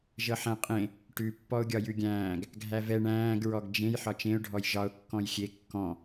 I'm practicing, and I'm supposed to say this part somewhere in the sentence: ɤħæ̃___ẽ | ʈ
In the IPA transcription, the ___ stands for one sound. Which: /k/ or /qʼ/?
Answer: qʼ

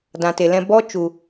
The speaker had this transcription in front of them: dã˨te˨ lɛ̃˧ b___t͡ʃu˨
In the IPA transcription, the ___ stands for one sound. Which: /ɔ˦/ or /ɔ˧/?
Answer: ɔ˦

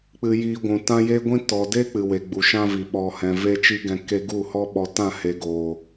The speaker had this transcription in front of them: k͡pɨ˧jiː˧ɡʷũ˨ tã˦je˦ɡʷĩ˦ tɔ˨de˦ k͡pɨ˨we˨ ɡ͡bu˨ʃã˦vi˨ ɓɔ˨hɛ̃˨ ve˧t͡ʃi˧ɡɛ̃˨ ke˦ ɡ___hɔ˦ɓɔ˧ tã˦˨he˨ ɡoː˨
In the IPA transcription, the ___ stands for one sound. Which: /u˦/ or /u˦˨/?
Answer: u˦˨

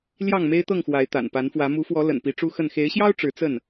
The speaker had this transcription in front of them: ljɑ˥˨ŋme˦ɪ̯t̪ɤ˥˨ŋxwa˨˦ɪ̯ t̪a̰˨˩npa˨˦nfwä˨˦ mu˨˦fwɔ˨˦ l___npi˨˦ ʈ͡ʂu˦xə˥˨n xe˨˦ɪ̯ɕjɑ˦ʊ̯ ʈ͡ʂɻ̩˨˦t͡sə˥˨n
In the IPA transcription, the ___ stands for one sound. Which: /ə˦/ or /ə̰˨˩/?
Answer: ə̰˨˩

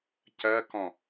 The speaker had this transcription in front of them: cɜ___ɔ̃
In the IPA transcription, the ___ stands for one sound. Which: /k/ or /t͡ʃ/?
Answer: k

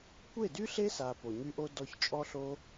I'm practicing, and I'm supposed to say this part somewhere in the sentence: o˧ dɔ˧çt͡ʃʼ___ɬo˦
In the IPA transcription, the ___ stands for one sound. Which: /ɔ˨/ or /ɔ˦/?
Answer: ɔ˦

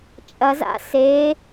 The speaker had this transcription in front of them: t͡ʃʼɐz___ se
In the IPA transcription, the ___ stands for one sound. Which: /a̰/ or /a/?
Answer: a̰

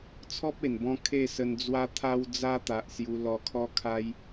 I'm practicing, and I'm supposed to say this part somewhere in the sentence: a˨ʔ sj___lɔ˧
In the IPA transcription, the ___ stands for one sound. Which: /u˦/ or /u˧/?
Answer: u˧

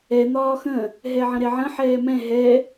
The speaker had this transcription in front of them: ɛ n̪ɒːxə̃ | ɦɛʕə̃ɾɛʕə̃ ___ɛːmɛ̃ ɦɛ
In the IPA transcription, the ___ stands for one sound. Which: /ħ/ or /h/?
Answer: ħ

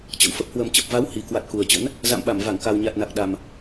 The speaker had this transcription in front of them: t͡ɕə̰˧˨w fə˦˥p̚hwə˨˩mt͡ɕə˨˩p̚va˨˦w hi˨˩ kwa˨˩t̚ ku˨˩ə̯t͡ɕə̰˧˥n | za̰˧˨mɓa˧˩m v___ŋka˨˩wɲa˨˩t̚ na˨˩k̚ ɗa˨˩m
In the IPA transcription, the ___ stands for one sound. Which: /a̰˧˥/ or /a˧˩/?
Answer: a˧˩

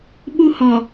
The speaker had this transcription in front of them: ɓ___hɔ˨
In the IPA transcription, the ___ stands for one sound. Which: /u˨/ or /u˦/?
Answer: u˦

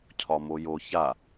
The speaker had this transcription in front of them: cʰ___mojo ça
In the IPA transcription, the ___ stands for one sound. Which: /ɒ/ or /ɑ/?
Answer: ɒ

